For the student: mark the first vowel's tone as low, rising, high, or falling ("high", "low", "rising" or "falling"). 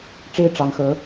high